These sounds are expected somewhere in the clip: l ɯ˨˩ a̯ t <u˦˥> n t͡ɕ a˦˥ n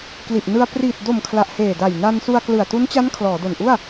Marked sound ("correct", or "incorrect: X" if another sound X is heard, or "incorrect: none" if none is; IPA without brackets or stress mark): correct